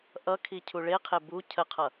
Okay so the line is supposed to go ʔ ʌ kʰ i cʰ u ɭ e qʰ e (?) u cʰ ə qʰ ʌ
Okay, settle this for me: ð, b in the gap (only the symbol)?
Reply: b